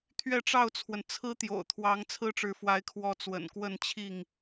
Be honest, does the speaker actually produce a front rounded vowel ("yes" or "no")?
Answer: no